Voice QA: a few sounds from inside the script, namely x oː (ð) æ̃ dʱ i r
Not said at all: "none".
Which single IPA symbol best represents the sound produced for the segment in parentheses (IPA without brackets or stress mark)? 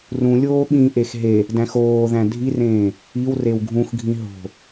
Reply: ð